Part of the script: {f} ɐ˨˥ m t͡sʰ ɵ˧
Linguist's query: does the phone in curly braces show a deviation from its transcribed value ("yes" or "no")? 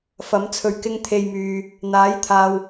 no